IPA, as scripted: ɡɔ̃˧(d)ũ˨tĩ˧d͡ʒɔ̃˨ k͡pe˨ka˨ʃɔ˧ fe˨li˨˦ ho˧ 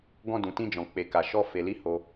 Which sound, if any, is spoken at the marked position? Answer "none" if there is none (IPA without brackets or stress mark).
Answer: d